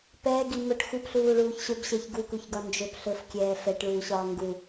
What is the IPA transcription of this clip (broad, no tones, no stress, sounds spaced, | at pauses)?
p ɛː ɡ i m ɵ ʈ x u p ɬ uː ɭ uː ç ɕ ɵ b ɕ ɛ ç ɡ u k u ç ɡ ɒ n d͡ʒ ɵ p ɬ ɵ f kʲ ɛː f ɛ ʈ ɭ uː ɕ ɒː ŋ ɡ u